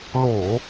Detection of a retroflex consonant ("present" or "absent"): absent